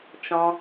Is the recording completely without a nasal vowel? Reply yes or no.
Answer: no